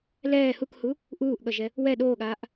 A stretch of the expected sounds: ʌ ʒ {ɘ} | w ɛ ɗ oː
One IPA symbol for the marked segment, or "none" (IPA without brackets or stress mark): ɛ